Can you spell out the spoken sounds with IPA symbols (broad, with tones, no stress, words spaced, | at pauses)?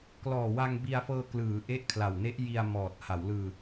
klɔː˨˩ wa˧ŋbi˧a̯fɤː˧klɯː˩˦ ʔe˦˥ʔkʰla˨˩wne˦˥ʔ ji˧a̯mɔː˨˩t̚ ha˩˦wlɯː˧